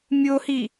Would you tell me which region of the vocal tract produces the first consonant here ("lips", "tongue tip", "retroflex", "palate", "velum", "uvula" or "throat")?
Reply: lips